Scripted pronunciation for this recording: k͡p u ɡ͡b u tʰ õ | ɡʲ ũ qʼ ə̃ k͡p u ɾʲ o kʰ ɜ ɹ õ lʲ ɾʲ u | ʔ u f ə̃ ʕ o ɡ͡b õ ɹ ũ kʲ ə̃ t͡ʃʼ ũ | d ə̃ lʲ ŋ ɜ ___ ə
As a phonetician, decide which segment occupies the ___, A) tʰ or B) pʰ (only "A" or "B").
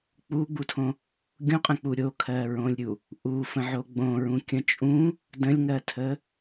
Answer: A